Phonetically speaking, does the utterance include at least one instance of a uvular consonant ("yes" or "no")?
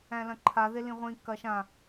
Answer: yes